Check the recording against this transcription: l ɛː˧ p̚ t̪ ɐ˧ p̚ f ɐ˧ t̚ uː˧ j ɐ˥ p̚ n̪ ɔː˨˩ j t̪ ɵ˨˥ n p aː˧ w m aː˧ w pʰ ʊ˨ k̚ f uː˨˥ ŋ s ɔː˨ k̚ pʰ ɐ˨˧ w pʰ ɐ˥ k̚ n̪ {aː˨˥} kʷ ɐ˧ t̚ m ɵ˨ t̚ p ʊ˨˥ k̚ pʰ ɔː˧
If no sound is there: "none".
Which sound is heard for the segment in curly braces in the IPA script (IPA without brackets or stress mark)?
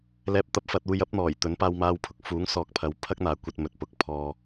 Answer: aː˨˥